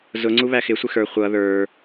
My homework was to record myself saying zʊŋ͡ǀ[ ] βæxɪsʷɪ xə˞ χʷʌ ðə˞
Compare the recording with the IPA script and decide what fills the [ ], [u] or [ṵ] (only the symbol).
u